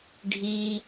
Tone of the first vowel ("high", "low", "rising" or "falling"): high